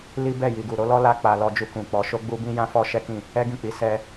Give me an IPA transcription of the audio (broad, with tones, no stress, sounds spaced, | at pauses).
l i˦ b ɛ˦˨ j i˨ ɡ u˨ ɾ o˨˦ l ɔ˦ l a˦ k͡p a˧ l ɔ˧ d͡ʒ u˧ k ũ˨ k͡p ɔ˨˦ ʃ o˦ ɡ͡b u˦ b ĩ˦ j ã˦ f ɔ˦ ʃ ɛ˦ k ĩ˦˨ | ɛ˦ ɡ ĩ˦˨ k͡p i˨˦ s ɛ˧